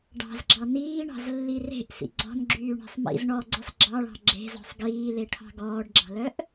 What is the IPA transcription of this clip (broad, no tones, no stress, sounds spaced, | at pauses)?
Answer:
ɖ ɑ̤ z ɡ͡ǁ ɑ n iː ɳ ɑ̤ z lː i r e̤ ʔ s ḭ ɡ͡ǀ ɔ̤ n ɡ͡ǁ yː ɳ e̤ sˤ m ḭ z ɳ ɔ ɡ͡ǀ e sˤ ɡ͡ǁ ɑ ɭ ɑ̤ ɡ͡ǁ e̤ z ɔ̤ sˤ ɡ iː l e ʈʰ ɑ̤ ɡ ɔː ɖ ɡ͡ǁ ɑ̤ l œ ʔ